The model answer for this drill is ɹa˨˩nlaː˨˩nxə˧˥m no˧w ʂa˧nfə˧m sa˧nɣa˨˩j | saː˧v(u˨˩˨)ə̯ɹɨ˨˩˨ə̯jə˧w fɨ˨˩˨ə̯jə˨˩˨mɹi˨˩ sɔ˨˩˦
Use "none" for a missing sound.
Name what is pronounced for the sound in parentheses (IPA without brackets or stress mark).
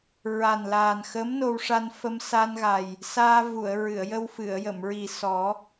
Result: u˨˩˨